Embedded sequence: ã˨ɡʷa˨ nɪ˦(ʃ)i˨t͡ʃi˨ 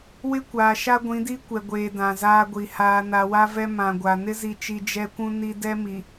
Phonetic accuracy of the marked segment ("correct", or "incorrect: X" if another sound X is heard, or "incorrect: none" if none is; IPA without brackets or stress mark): incorrect: z